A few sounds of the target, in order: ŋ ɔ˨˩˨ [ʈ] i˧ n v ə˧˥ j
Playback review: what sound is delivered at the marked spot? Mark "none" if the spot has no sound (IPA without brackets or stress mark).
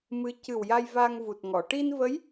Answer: ʈ